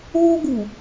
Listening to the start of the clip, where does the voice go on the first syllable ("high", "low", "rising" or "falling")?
high